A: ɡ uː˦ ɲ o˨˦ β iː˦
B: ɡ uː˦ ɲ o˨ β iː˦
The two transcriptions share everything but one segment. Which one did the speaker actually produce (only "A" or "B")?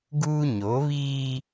A